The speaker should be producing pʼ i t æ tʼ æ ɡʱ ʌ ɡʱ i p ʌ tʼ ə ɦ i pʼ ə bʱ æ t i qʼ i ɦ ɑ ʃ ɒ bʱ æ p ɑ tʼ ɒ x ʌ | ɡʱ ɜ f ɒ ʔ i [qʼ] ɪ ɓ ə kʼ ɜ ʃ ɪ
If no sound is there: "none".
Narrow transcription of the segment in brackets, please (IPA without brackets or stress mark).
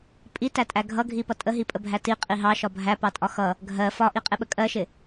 qʼ